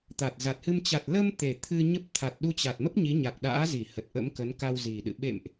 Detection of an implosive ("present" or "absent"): present